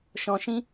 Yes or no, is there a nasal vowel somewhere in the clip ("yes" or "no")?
yes